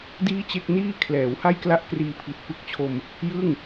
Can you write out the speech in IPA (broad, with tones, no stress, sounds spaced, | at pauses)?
d iː˥˩ t͡ɕ e˥˩ k̚ n iː˥˩ kʰ l ɛː˩˦ w h a˥˩ j k l a˥˩ ʔ k r iː˧ pʰ i˨˩ t̚ p ɯ˦˥ k̚ t͡ɕʰ o˧ m | j ɯ˥˩ ŋ